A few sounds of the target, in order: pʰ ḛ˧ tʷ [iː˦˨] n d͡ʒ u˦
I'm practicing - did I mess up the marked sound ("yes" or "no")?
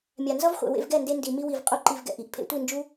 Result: yes